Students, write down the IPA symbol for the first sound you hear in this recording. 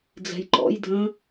d͡z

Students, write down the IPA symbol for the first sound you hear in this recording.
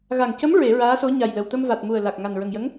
ɣ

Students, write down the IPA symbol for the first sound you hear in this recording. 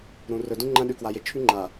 ɾ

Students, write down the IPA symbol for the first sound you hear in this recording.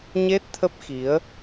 ɲ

